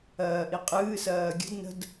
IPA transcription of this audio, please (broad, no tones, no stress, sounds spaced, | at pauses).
ɜː ʔ i qʼ ɨː s ɜː ɡʲ ə̤ d n ə̤ d